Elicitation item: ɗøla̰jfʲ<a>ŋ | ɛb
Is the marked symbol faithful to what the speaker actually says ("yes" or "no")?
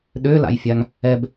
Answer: yes